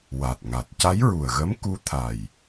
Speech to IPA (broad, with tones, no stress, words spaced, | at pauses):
wa˨˩t̚ŋa˨˩t̚ ca˧˥jɹu˨˩ə̯ɣə˧˥m ku˧˥t̪ʰa˨˩j